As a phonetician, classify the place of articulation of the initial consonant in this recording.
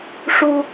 retroflex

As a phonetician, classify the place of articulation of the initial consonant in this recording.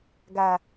velar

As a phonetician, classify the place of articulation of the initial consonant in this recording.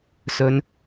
alveolar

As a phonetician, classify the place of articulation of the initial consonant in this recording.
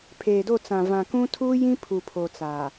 labial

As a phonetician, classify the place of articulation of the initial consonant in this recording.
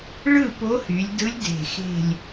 retroflex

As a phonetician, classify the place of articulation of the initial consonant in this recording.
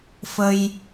labial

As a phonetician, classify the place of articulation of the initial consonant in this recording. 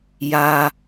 palatal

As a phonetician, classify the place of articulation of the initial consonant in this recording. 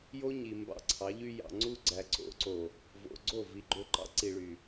palatal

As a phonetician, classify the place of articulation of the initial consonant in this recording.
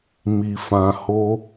labial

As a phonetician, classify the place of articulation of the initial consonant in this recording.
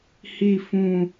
glottal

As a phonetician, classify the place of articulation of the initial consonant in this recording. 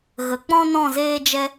velar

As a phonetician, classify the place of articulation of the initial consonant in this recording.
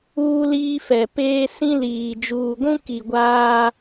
alveolar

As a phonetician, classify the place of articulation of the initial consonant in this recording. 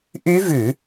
glottal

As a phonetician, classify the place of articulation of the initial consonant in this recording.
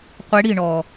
uvular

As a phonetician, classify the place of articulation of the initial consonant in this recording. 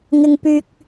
velar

